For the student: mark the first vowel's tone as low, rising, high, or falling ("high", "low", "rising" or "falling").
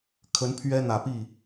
rising